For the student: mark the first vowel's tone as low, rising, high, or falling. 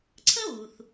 high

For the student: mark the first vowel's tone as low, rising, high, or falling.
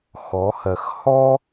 rising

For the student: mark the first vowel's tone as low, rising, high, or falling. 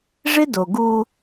high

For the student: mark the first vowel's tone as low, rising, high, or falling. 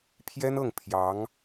high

